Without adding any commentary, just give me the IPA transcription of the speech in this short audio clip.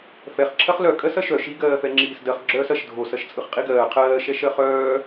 f ɛ χ ǁʰ ɐ χ l œ kʼ ɜ s ɐ ʃ œ ʃ i ɡ ɜː f ɛ ŋ͡ǁ iː s d ɜ χ ɡ͡ǁ œː s ɐ ʃ dʱ o s ɐ ʃ t͡sʼ ɯ χ qʼ i ɡ ɜː qʰ ɜː ʃ ɛ ʃ ɜ χ œː

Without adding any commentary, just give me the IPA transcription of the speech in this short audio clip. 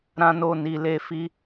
ɾ ã˦ n o˦˨ n i˧ l e˦ f i˦

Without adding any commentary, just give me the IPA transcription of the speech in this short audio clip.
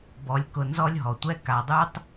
b ɔ˨ lʲ k ʊ˨ n z ɔ˦ lʲ ɦ ɔ˩ tʷ ɛ˦ k a˨ dˤ u˦ tˤ

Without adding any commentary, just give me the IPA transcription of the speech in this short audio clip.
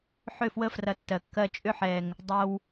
ħ ʏ˦˨ f w ə˦ f r ɐ˧ tː ɜ˨ kː ɜ˧ t͡ʃʼ ʏ˧ ħ ɛ˨ ŋ | dˤ ɐ˧ w

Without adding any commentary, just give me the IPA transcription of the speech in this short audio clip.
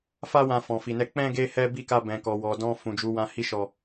f a˦ w ã˧ f ɔ̃˨ f i˨ n ɛ˧ k͡p ɛ̃˦ ɡ e˦ h ɛ˦ b i˦˨ k a˧ b ɛ̃˨ k ɔ˨ w ɔ˨ d ɔ̃˧ f ũ˨ d͡ʒ u˨˦ w ã˧ h i˧ ʃ ɔ˨

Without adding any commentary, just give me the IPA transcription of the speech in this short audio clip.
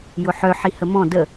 j ʊ ħ œ ħ i h ə m ɔ̃ d ə

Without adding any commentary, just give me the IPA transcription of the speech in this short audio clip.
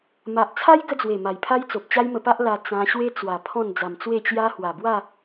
m a˨ ʔ t͡sʰ a˦ j ɡ ə˦ d͡z w e˨˩ m a˨˩ j pʰ a˦ j t͡s o˨ p̚ t͡ɕ a˦ j m ə˧ p a˦ ʔ l a˧ t͡s ã˧ ɕ w e˦ t͡s w a˨˩ pʰ ɔ̃˥˧ n d͡z a˨˩ m t͡s w e˥˧ t͡ɕ j a˦ h w a˨˩ b w a˥˧

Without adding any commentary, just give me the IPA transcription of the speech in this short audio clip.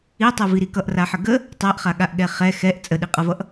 i tˤ ɛ v i ɾ i k ʌ ʔ r a ħ ə ɡ ə | tˤ a ʔ χ a ɠ a ʔ ɠ ɛ χ ɛ x ɛ ʔ t͡sʼ ə ɗ i qʼ ʌ v ʌ ʔ

